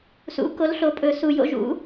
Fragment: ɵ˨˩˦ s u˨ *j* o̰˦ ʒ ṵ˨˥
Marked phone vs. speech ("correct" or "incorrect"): correct